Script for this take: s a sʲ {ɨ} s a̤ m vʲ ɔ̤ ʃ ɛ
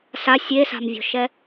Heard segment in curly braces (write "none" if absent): e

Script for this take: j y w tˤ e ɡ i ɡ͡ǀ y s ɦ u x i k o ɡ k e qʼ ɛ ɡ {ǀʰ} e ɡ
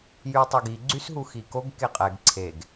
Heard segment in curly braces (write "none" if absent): ǀʰ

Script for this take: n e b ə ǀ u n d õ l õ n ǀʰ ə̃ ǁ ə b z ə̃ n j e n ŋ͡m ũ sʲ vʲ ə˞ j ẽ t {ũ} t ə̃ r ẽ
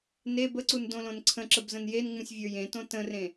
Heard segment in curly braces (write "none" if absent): õ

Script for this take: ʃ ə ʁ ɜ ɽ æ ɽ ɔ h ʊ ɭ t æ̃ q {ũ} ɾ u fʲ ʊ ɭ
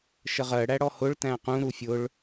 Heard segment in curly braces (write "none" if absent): ũ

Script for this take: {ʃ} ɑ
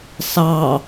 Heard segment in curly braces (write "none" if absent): s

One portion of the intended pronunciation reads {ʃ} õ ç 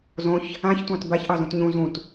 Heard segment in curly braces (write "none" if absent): z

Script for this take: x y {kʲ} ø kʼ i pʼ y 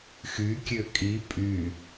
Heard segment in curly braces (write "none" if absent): kʲ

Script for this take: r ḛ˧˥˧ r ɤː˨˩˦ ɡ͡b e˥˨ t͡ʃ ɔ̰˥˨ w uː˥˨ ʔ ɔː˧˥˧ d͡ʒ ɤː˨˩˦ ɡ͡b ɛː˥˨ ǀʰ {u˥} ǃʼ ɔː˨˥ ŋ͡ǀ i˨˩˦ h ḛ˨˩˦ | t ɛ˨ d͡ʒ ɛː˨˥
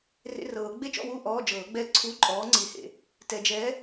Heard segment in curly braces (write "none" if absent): u˧˥˧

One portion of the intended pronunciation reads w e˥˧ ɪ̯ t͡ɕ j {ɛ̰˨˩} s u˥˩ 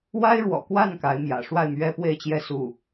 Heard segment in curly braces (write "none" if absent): ɛ˥˧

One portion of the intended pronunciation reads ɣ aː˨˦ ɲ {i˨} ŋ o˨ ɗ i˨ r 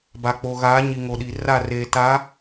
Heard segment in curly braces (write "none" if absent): i˨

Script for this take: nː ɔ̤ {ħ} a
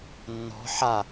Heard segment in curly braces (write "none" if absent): ħ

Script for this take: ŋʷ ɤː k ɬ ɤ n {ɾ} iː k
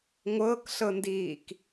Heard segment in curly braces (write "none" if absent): d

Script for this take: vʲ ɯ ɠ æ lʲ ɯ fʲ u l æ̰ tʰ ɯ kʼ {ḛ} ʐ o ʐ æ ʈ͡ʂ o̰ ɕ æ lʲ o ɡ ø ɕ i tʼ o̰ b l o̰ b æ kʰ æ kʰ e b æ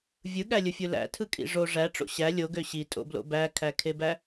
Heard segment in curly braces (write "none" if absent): ḭ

